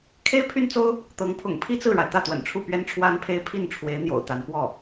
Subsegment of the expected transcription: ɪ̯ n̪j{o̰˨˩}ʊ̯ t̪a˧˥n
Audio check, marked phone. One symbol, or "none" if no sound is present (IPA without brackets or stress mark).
o̰˨˩